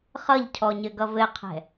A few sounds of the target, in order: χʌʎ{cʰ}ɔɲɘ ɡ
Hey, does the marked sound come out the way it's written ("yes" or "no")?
yes